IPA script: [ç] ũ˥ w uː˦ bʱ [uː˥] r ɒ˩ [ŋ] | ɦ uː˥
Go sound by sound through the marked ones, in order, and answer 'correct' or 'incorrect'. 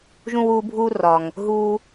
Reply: incorrect: ʒ, correct, correct

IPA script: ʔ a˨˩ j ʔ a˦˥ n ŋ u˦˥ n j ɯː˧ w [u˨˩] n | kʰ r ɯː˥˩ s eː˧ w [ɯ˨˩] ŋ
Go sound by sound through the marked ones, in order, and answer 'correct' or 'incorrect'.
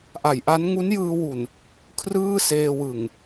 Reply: correct, correct

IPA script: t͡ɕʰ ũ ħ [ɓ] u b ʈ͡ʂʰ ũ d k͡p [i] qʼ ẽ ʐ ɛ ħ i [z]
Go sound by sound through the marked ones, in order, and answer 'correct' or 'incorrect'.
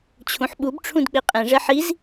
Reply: correct, correct, correct

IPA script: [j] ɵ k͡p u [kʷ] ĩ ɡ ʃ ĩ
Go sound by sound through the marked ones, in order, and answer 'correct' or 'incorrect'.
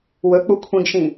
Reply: incorrect: w, incorrect: kʷʰ

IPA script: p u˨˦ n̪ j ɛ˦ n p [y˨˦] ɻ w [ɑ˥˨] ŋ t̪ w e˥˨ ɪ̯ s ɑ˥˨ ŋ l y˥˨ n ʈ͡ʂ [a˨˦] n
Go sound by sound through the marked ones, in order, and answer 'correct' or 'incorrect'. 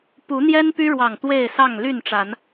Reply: incorrect: y˦, incorrect: ɑ˨˩, correct

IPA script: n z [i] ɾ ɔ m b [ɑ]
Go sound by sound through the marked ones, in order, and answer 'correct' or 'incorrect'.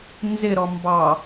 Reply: incorrect: ɪ, correct

